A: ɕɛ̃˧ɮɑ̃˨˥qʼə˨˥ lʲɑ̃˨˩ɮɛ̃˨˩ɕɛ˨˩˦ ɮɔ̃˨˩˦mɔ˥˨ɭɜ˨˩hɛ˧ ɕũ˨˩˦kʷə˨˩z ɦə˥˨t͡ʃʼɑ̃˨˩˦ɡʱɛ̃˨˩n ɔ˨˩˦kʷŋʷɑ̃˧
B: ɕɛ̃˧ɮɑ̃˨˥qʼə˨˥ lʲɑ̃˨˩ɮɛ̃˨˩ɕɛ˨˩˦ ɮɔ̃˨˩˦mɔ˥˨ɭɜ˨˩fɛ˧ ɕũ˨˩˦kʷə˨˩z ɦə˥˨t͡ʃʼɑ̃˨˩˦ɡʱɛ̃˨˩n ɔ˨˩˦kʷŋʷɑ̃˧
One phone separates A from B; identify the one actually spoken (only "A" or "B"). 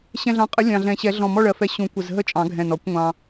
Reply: B